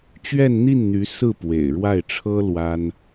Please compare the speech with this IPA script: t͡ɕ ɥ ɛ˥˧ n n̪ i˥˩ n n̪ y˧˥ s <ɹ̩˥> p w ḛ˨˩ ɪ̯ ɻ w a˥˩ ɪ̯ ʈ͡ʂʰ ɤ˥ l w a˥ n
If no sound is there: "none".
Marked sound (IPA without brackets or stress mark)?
ɹ̩˥˩